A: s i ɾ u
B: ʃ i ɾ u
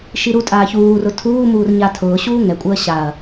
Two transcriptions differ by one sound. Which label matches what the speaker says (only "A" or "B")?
B